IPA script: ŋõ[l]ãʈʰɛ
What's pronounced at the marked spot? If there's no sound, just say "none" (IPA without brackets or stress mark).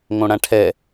ɽ